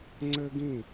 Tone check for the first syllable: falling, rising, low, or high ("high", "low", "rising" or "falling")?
high